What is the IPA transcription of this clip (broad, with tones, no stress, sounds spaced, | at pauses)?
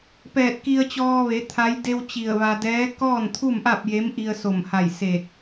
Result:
p ɛː˧˩ t̚ k i˧ ə̯ t͡ɕ ɔː˧ ʋ e˩˧ t̪ʰ a˧˥ j d e˧ w t͡ɕ i˧˩ ə̯ ʋ a˧ d ɛː˧˥ k ɔː˥˨ n t̪ʰ u˥˨ m ʔ a˥˨ p̚ j e˧˥ m ʔ i˧ ə̯ s o˧˩ m h a˧˩ j s e˧˩ k̚